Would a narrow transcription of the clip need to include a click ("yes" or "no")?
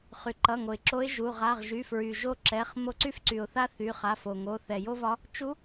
yes